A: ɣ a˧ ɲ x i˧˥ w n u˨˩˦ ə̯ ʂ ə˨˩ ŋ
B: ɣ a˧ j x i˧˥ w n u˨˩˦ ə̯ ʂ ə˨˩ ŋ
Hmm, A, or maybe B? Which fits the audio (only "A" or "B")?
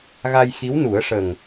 B